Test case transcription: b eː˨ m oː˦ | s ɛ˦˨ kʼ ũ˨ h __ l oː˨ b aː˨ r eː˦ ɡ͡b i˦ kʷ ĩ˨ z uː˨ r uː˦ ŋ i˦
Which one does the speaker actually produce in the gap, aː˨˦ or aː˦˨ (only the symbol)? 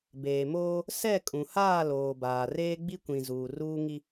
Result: aː˦˨